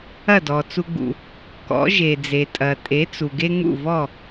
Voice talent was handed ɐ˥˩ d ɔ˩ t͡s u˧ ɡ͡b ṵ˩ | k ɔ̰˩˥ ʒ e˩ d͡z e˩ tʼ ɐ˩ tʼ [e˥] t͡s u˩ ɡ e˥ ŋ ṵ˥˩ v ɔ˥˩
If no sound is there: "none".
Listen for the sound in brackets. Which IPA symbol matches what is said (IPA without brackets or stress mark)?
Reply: e˩˥